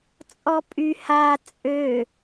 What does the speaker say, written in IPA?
t͡sʼ ɔ pʼ y h a t͡sʼ ø

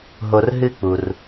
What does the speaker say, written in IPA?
ɦ o˨ r ɦ ɨ˥ k͡p u˩ r

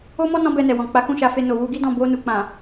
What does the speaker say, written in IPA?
o˦ m ɔ˦ n ɔ̃˦ b ɛ˧ n ɛ˨ w ɔ̃˨ k͡p a˨˦ k ũ˦˨ ʃ a˧ f e˧ n o˨ w u˧ ɡ i˦ d ɔ̃˦˨ b o˧ n u˨ k͡p ã˨

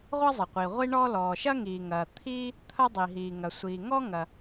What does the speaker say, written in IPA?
ʁʷ ɐ˥ zˤ ɐ˩ qʷ i˩ ʁʷ i˥ ɳ ɔː˥ l ɔː˩ ʃ ɐ˥ ŋ iː˩ ŋ ɐː˩ t̪ʰ iː˥ | t̪ʰ ɐ˥ dˤ i˩ ɦ iː˩ ŋ ɐ˩ sʷ iː˩ ŋ ɔ˥ ŋ ɐ˩

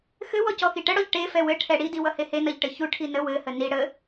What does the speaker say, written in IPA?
x ɘ w ɔ c ɔ x i ʈ ə ɽ ɔ ʎ ʈ e f ɛ w ɘ ʈʰ ɛ ɽ i d i w ʌ h e h e n ʌ ʎ ʈ ɘ ç u ʈʰ i n ə w ɘ h ə n i ɽ ə

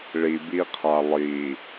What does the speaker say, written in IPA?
ɭ i b i qʰ a lˠ i

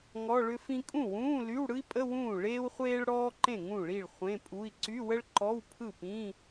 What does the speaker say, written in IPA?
ŋ ɔ˧˥˧ ɭ ʏ˥ f ĩ˥ kʼ ũ˥˩ w ũː˧˥˧ l y˧˥˧ w ɽ ɯ˥ i̯ pʼ ə˧˥˧ w ũː˥˩ ɭ eː˥ w χʷ eː˥ ɭ ɽ ɔː˥ ǃ ẽ˥˩ ŋ ũ˥˩ ɭ i˥˩ ɭ χʷ ẽ˧˥˧ pʼ u˧˥˧ i̯ ǀ y˧˥˧ w ə˥ ɭ ǃ ɔ˧˥˧ w pʰ ɯ˥˩ p ĩ˧˥˧

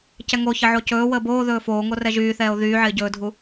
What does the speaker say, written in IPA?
c ɛ ŋ o ç ə ʕ o c ɵː w əː b oː ð ɵː f oː ŋ o r ɛ ʒ yː θ ɛː o̯ ð yː ʕ ɪː ɟ ɵː dʱ u

